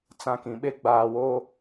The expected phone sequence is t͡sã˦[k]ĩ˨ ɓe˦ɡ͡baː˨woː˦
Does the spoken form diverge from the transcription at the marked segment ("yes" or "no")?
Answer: no